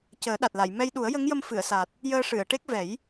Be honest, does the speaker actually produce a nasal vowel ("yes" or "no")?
no